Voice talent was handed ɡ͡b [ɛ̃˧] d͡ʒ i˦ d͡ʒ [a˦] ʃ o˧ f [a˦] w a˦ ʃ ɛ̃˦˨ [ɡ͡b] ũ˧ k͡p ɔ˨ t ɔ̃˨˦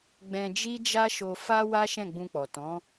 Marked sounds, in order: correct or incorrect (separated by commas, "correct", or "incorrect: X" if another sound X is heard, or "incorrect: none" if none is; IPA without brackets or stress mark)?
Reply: correct, correct, correct, correct